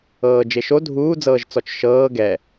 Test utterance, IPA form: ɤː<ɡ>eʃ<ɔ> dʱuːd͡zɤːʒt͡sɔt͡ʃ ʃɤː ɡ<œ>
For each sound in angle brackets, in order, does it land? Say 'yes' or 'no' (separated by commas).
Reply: no, no, no